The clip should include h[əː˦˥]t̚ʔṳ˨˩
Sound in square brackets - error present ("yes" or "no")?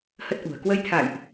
yes